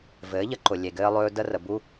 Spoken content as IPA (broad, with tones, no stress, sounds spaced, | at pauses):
v ɘː˩˥ ʎ ə˧ ǃ ʊ˩ lʲ e˩ ɡ ɘː˧ lˠ ɵː˧ d ə˧ r ə˩ b u˧